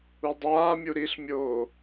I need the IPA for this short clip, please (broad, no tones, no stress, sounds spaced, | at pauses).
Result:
u dˤ aː mʲ u ɾ i ɬ mʲ oː